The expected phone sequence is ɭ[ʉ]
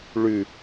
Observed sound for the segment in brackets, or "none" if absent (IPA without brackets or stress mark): ʉ